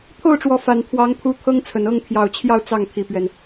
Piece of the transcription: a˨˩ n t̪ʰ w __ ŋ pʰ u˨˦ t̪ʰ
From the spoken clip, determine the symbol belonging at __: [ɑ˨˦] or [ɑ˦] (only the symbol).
ɑ˨˦